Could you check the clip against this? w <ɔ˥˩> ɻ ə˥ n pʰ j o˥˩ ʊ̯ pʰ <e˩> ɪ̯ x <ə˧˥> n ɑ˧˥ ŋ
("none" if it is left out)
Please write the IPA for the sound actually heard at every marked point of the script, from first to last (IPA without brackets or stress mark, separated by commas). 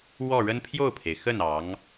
ɔ˥˩, e˩, ə˥˩